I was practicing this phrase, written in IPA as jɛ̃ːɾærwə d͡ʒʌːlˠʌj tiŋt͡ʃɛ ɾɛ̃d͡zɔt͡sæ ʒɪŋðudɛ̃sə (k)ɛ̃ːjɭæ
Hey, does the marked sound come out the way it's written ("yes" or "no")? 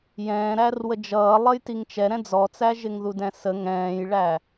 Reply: no